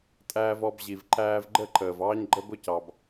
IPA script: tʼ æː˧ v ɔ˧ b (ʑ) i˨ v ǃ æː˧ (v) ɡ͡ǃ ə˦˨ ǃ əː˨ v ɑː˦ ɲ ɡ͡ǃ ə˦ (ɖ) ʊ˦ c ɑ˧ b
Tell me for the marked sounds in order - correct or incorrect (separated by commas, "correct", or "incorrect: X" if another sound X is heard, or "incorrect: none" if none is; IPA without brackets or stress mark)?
correct, correct, incorrect: b